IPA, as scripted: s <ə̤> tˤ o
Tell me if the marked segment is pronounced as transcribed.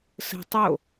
yes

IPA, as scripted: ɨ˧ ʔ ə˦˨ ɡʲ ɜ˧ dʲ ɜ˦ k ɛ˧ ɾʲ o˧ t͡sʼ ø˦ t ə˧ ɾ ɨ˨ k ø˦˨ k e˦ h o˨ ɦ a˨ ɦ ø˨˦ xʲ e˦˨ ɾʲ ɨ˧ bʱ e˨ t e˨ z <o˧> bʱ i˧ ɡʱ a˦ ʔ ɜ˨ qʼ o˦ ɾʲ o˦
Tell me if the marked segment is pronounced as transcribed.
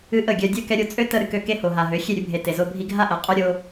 yes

